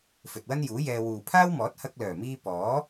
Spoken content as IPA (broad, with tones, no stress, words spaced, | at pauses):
fɵ˨t̚wɐ˥njuː˨˥jɛː˧ wuː˨pʰaː˥wmɔː˨˥t̚ hɐ˧k̚lœː˨˩miː˧ pɔː˨˥